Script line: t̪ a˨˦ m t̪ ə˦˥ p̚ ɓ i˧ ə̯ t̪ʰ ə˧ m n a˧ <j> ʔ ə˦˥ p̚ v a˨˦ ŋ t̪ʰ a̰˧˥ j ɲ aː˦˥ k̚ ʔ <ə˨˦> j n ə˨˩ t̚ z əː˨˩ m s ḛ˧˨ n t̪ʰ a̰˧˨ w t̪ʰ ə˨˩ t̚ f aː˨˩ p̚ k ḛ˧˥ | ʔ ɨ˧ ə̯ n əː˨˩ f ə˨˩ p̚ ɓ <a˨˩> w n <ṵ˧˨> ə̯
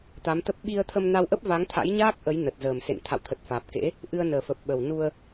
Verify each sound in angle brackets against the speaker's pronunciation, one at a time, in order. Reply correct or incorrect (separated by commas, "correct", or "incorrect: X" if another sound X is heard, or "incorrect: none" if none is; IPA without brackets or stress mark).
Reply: incorrect: w, correct, incorrect: ə˨˩, incorrect: u˧